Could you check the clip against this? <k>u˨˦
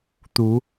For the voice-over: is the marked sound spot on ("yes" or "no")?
no